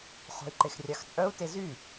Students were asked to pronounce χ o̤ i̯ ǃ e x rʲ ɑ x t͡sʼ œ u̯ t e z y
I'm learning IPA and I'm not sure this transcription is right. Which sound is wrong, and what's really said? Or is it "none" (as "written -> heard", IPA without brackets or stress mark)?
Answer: none